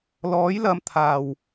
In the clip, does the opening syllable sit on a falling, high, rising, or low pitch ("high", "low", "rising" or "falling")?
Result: rising